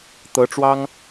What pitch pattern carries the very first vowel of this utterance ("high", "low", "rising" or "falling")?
rising